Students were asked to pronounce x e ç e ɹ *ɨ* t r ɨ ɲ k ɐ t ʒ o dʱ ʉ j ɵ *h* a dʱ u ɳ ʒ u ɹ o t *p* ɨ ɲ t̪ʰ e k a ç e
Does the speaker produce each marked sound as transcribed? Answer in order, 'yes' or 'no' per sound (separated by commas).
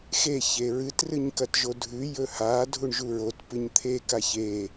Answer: yes, yes, yes